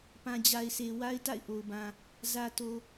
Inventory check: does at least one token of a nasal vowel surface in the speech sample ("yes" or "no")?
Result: yes